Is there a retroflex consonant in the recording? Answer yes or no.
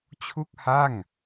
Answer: no